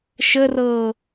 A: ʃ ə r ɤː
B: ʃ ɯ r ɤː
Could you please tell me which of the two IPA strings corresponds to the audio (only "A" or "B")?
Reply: A